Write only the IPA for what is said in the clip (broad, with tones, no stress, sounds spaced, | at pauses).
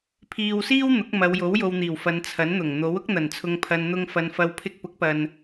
pʰ iː˧ w s iː˥ w n̪ ʊ˨˥ k̚ m ɐ˨˧ w j o˨˥ w j o˨ w n̪ iː˨˩ w f ɐ˨˧ n t͡sʰ ɐ˨˥ n n̪ ʊ˨˩ ŋ n̪ o˨˥ w ʊ˥ k̚ n̪ ɐ˨˩ n t͡sʰ ʊ˨ ŋ pʰ ɐ˨ n n̪ ʊ˧ ŋ f ɐ˨ n f ɐ˨˧ w pʰ ɪ˧ k̚ p ʊ˨˥ k̚ p ɐ˨ n